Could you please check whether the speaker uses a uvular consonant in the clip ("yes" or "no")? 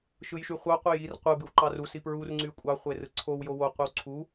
yes